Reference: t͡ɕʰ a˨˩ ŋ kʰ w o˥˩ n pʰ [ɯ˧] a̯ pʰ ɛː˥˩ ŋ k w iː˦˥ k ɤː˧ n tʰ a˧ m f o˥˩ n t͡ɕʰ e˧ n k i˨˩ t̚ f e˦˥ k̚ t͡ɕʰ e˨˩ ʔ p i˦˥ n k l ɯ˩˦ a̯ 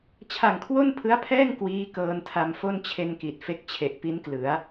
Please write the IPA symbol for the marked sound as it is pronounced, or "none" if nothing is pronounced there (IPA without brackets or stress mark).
ɯ˦˥